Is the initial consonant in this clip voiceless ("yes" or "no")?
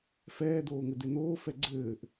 yes